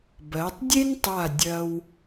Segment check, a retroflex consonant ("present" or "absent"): absent